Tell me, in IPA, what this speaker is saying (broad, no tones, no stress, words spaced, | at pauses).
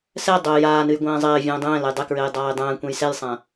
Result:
sɛ dˤo jaːnɨj ɡʷɛ̃ːzˤɘː vʲɛ̃ːdˤɛ̃ːlɘj dˤɘkɹɘːj dˤaːjdˤɛ̃ː kʷɛ̃jsɛjsˤã